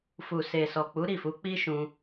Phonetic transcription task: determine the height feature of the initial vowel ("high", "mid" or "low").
high